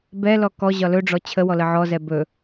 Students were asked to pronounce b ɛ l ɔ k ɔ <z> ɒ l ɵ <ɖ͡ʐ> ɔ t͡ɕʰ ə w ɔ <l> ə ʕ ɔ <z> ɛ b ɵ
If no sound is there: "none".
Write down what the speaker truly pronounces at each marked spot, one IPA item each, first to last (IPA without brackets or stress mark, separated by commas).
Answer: ʑ, ɖ͡ʐ, l, z